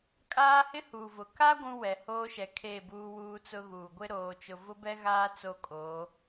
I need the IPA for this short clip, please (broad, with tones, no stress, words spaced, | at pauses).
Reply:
kʼaː˦hɪ˦huː˨vʊ˨ ka˦ ɡʷũ˦wɛ˨ hoː˦ʃɛ˨ kʰe˦˨ buː˦wuː˦t͡sʊ˦ɣuː˨ ɡʷɪ˦ɾoː˨t͡ʃʊ˨ vʊ˦bɛ˦ɣaː˦ t͡so˦kʼo˨˦